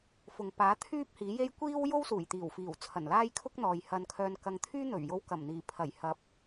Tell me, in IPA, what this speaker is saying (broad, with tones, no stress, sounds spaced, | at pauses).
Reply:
f ʊ˨ ŋ p aː˨˥ t̪ʰ yː˥ p̚ h iː˨˥ j e˥ j kʷ iː˥ w j o˥ w s uː˨˩ j t̪ iː˨˩ w f iː˨˩ w t͡sʰ ɐ˨˩ n l aː˥ j kʰ ʊ˥ k̚ n̪ ɔː˨ j h ɐ˧ n kʰ œː˧ n k ɐ˨˧ ŋ t̪ʰ yː˥ n̪ ɵ˨˩ ɥ j o˧ w k ɐ˨˩ m n̪ iː˨˩ pʰ ɐ˨˩ j h ɐ˨˥ p̚